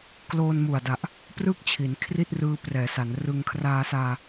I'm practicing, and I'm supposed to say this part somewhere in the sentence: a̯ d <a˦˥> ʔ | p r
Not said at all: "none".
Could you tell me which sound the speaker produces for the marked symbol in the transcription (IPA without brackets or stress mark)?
a˨˩